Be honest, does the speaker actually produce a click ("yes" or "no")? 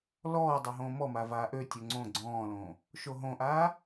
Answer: yes